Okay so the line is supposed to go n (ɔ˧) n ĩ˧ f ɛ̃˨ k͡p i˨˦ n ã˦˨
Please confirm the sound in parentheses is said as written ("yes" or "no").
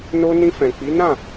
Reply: no